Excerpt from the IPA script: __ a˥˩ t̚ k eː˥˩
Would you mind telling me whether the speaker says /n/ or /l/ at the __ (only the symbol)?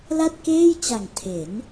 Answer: l